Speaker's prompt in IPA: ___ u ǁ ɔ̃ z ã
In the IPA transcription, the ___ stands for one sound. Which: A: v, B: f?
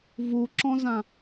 A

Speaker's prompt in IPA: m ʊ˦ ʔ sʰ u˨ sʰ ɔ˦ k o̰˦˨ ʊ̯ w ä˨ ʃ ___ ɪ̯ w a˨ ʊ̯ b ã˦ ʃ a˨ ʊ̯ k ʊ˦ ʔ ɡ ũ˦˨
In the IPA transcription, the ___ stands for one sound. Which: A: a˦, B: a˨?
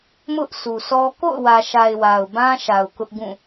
B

